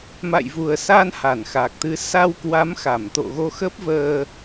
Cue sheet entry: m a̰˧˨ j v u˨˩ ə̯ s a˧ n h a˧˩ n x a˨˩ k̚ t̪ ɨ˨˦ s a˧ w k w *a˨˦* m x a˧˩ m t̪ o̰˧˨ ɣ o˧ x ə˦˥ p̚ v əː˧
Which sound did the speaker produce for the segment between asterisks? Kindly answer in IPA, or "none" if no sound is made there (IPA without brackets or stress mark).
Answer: a˨˦